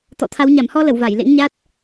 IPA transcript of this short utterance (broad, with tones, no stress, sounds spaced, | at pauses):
t̪ ɔ̰˧˨ t̪ʰ a˨˦ w ɲ a˧˩ m h ɔ˧ l ə˧˩ w v a˧˩ j l ḛ˧˥ ŋ ɲ a˦˥ t̚